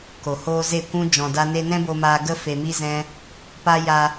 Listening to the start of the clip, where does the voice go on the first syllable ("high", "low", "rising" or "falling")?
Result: low